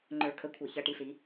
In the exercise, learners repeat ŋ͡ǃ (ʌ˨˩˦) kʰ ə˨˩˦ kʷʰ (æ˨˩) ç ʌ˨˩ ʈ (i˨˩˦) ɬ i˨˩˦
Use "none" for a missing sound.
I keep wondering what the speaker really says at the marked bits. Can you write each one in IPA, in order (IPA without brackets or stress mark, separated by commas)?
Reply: ə˞˨˩˦, æ˨˩, i˨˩